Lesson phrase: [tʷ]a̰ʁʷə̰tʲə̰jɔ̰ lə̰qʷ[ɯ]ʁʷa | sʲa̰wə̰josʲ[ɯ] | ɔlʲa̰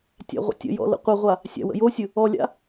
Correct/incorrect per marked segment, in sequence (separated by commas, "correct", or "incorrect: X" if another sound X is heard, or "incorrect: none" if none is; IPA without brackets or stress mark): incorrect: tʲ, incorrect: ə, correct